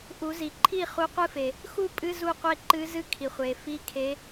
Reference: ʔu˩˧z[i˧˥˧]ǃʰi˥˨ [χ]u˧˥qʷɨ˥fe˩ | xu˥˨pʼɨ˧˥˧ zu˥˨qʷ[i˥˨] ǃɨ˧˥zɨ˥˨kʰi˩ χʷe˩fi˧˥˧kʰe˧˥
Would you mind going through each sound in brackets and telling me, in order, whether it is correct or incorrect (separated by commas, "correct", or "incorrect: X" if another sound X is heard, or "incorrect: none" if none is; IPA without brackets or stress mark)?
incorrect: i˩, correct, incorrect: e˥˨